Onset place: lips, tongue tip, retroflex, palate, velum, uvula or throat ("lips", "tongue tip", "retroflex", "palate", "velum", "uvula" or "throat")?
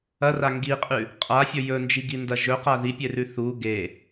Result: tongue tip